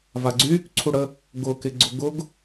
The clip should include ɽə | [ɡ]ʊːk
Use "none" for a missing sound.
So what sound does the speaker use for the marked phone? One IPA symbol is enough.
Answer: ɡ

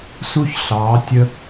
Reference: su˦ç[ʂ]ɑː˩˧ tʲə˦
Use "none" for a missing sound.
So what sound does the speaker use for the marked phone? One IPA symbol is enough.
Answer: ɬ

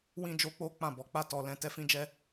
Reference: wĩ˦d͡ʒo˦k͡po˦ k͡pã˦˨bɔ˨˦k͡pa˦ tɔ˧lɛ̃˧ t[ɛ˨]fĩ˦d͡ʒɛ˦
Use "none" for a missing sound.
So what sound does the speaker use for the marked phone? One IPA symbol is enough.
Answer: ɛ˦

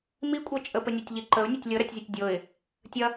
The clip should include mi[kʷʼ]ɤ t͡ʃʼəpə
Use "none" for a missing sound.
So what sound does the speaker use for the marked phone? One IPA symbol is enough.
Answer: kʷʼ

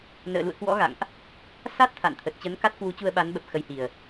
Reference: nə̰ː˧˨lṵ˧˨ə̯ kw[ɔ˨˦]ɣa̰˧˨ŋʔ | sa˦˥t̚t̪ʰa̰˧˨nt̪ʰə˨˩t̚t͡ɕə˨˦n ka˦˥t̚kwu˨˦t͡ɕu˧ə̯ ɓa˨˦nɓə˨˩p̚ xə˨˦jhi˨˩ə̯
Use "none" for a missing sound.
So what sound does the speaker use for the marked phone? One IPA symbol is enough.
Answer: ɔ̰˧˥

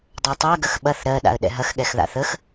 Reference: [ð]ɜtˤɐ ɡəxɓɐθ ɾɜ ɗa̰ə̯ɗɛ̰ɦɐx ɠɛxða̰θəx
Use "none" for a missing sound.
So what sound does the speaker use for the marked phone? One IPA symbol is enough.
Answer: dˤ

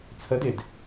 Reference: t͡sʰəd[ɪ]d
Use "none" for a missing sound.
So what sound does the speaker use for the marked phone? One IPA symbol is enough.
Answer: ɪ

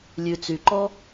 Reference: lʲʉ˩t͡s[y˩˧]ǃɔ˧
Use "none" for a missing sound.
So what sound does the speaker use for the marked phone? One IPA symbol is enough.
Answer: y˩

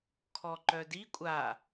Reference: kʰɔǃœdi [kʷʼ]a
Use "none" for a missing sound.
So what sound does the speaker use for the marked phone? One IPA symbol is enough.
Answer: kʷʼ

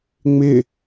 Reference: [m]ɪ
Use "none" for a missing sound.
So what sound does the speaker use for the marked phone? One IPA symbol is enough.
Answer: ŋ͡m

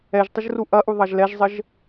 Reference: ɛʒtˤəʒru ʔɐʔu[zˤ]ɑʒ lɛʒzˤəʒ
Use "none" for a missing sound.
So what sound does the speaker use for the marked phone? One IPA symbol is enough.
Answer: ðˤ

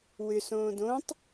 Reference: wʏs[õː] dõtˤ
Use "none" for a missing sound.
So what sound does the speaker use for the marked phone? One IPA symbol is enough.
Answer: õː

